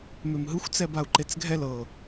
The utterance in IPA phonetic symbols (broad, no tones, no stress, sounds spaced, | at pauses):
m e m ɦ ɯ xʷ t͡s ɛ b a u̯ ǃ e t͡s ɡʱ ɛ l ɤ